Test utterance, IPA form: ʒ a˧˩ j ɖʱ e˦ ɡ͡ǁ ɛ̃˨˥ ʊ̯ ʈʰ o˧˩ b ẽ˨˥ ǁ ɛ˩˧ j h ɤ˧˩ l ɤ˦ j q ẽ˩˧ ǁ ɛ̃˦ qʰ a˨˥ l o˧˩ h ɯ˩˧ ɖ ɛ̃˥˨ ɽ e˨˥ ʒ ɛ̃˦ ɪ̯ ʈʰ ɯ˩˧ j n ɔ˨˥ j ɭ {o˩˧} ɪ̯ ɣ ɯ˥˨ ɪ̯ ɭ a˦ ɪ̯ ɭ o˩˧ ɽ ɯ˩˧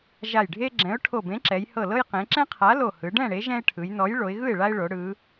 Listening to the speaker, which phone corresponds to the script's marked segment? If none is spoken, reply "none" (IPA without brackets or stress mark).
o˩˧